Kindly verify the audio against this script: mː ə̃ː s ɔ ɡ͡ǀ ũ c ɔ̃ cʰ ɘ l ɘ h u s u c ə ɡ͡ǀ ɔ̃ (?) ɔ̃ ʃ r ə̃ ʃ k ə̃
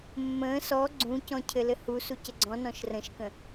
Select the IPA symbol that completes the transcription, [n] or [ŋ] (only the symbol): n